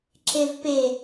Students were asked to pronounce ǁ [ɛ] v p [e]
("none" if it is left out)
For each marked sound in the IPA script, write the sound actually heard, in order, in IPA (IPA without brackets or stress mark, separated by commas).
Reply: e, e